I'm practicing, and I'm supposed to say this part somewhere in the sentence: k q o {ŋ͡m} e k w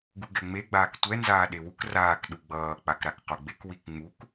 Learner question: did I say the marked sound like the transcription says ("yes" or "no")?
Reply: no